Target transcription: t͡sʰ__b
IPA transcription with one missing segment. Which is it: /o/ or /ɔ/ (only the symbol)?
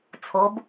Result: o